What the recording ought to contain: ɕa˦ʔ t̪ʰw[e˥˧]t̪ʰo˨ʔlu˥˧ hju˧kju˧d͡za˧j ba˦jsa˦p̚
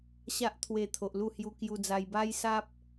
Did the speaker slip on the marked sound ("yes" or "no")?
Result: yes